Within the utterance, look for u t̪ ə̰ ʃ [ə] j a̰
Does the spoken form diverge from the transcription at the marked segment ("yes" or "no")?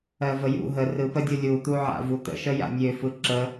no